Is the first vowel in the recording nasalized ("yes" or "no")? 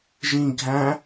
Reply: yes